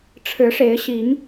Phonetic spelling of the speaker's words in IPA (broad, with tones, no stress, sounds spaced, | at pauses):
ʈ͡ʂʰ ɻ̩˨˦ ʂ e˨˦ ɪ̯ ɕ i˨˦ ŋ